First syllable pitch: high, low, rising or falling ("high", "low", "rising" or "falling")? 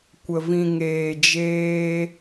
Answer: low